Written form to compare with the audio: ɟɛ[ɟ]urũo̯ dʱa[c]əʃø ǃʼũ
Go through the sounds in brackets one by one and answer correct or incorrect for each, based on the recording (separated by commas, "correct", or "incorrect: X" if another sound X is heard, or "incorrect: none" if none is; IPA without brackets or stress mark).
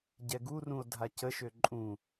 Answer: incorrect: ɡ, correct